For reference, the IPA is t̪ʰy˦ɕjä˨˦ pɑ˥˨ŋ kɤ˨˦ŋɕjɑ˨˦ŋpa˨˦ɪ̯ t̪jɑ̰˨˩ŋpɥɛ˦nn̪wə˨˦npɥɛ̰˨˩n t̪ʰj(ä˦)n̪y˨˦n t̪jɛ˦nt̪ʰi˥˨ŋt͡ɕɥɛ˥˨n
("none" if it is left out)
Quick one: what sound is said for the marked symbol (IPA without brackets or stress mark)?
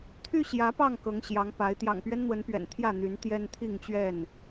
ä˥˨